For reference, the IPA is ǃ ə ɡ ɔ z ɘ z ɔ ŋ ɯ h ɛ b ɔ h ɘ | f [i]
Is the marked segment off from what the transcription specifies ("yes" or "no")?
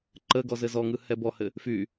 yes